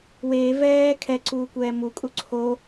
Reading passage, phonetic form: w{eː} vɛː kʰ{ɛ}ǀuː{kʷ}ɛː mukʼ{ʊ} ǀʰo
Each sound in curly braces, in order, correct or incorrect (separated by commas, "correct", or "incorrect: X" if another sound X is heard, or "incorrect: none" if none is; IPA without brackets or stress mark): correct, correct, correct, incorrect: u